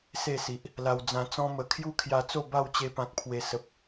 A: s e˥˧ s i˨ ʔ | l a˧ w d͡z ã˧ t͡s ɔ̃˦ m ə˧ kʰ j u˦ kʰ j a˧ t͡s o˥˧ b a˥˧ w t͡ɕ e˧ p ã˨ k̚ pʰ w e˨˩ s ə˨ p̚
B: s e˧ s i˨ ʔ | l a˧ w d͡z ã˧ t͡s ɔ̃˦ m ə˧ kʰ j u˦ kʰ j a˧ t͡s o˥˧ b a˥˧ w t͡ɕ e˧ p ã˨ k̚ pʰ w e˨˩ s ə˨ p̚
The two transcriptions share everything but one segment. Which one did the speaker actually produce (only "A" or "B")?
A